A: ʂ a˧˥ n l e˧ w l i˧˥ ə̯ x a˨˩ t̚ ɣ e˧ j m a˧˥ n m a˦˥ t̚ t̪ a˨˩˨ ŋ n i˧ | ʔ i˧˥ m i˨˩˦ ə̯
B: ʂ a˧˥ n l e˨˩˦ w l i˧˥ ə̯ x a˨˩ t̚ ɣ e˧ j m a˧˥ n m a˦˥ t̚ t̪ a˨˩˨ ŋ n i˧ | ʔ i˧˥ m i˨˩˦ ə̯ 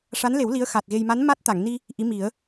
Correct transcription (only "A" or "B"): B